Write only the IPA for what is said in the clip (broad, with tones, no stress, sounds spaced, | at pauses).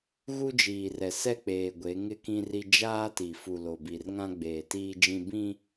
ɣ u˦ d͡ʒ iː˨ r ɛ˨ s ɛ˦ k͡p eː˨ ɡʷ e˨˦ ŋ ɪ˦ k ĩ˦ r i˦ d͡ʒ aː˦ t i˨ f u˨ l o˨ b i˨ r ŋ ã˦ ɡ͡b eː˨ t iː˦ d͡ʒ ĩ˦ b ĩ˦